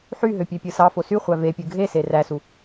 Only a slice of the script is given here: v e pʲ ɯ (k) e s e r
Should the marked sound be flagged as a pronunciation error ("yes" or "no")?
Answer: yes